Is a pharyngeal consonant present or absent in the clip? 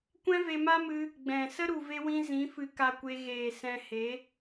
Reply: absent